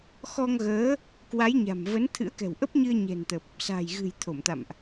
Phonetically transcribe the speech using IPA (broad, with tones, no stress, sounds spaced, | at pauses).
x ɔ˧ ŋ ɣ əː˨˦ | k w a˨˦ j ɲ a̤˨˩ m v ə˨˦ n t̪ʰ ɨ̰˧˥ ə̯ k ɛ̤˨˩ w ʔ ə˦˥ p̚ ɲ ɨ˧ ə̯ ɲ ɛ̤˨˩ n t̪ ə˨˩ p̚ | s a̤ː˨˩ j ɣ ɨ̤˨˩ j t̪ʰ o˧˩ m t̪ a̰˧˨ m ʔ